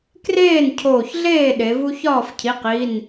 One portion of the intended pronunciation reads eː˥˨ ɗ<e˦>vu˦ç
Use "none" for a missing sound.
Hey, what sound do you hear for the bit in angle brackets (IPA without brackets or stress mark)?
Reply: e˩˧